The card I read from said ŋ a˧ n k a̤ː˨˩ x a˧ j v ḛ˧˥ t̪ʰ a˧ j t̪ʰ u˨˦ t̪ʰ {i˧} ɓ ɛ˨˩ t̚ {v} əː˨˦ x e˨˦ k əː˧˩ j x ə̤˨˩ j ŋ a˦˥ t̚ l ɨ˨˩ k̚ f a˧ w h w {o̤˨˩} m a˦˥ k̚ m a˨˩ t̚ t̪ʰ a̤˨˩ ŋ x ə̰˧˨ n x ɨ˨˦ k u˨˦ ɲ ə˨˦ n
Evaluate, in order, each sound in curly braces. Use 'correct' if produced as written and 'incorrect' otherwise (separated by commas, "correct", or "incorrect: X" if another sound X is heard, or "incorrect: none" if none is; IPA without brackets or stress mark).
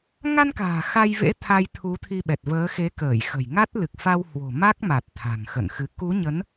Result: correct, correct, correct